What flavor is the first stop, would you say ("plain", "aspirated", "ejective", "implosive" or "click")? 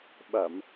implosive